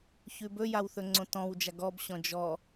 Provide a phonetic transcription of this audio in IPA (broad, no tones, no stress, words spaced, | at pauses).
çʉbɵjaw θɵŋ͡ǀõtɔ̃wd͡ʒa ɡɔbɕɔ̃ d͡ʒɔ